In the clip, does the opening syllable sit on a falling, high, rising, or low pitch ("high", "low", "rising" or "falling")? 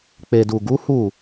low